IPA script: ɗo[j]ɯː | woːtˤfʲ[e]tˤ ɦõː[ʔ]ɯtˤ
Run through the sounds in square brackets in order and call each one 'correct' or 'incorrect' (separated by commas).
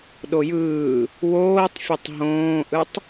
correct, correct, correct